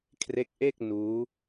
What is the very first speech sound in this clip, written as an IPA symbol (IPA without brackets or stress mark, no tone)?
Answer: kʰ